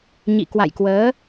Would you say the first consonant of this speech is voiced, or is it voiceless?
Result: voiced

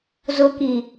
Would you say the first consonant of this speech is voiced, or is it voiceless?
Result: voiced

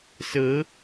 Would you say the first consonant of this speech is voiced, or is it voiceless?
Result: voiceless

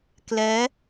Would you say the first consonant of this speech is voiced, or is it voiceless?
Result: voiceless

